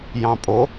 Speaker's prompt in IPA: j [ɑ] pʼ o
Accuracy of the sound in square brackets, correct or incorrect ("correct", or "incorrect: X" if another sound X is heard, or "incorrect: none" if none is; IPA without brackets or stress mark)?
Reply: incorrect: ɑ̃